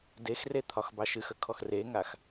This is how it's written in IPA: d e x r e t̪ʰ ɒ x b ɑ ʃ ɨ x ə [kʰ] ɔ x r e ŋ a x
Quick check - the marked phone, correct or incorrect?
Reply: correct